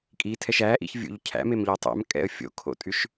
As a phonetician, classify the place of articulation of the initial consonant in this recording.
velar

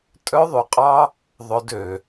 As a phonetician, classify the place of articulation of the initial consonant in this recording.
alveolar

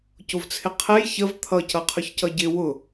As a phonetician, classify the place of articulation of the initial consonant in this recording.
palatal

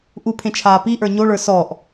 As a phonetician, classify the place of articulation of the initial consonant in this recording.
glottal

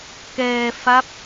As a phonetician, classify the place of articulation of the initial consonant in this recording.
velar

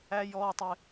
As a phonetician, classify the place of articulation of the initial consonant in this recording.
palatal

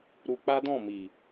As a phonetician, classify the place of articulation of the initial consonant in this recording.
alveolar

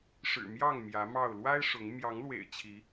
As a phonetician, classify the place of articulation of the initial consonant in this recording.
retroflex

